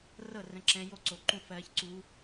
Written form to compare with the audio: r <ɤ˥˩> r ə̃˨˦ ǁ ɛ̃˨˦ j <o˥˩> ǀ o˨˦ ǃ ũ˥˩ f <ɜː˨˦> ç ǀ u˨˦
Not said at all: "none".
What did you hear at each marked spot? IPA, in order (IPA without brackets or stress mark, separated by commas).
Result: ɤ˥˩, o˥˩, ɜː˨˦